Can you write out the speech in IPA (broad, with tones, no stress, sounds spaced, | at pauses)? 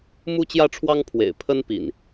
m u˦ t͡ɕ j ä˦ ʈ͡ʂʰ w ɑ˦ ŋ pʰ w ḛ˨˩ ɪ̯ pʰ ə˦ n p ḭ˨˩ n